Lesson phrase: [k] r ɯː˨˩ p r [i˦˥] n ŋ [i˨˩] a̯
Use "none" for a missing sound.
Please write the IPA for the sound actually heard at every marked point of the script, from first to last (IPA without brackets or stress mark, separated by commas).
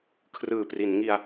kʰ, i˩˦, i˧